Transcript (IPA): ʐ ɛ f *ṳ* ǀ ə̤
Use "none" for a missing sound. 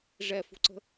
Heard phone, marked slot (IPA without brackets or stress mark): ṳ